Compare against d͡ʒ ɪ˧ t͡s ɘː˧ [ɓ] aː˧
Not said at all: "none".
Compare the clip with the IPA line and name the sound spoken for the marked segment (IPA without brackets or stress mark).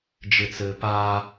p